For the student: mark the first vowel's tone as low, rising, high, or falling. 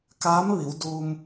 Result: rising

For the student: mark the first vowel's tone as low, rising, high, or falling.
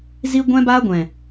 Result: high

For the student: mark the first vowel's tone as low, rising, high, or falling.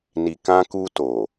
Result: low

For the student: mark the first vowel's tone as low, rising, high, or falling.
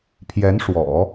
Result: rising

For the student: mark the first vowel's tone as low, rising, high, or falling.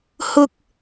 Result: high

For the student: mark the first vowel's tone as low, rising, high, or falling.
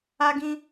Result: high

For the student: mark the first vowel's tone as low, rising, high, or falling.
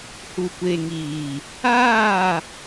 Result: low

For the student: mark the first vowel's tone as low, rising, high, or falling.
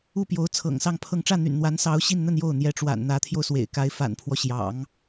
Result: falling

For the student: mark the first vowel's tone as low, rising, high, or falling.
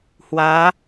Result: rising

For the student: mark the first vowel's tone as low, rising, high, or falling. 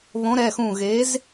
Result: rising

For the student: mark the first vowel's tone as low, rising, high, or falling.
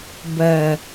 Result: low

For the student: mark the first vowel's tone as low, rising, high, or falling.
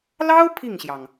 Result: high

